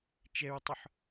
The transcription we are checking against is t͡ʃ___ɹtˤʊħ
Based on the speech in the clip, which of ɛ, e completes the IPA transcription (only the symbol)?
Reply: ɛ